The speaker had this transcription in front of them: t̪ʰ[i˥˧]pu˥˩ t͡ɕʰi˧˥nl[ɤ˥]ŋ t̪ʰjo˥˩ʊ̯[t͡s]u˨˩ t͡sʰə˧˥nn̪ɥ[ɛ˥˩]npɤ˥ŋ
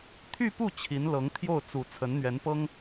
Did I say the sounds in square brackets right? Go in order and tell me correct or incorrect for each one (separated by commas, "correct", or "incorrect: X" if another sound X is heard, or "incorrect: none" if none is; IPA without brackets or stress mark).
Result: incorrect: y˥˧, incorrect: ɤ˧˥, correct, incorrect: ɛ˧˥